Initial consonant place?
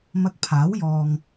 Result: labial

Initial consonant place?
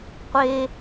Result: uvular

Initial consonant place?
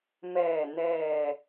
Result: labial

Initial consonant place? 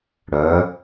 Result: retroflex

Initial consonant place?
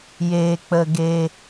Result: palatal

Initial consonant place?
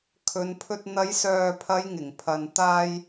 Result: velar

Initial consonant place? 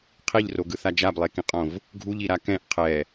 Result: uvular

